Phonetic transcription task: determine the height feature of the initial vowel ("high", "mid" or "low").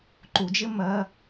high